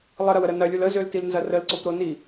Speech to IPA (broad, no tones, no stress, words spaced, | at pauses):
lˠəɾɐwəɾə nɐlʲul əzøltilnzɐ rəlǀopɾo ni